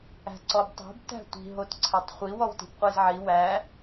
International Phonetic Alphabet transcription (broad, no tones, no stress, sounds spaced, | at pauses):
æ̤ ǀ ɔ b tˤ o̤ b t æ̤ tʷ i̤ ɦ o t ǀʰ æ tˤ χʷ i w ɔ w t i̤ b qʷ i z ʕ i w æ